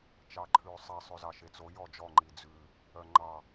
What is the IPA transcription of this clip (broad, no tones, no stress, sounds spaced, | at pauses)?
t͡ʃ ɑ ǃʰ ʉː sˤ i sˤ ʉ z ɑ ʃ e t͡s o j ɔ d͡ʒ ɔ ŋ͡ǃ i d͡z ʉ | œ ŋ͡ǃ ɑ